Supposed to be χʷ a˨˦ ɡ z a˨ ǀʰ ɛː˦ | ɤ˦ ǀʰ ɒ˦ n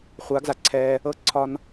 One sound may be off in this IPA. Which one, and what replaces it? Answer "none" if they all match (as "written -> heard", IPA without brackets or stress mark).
none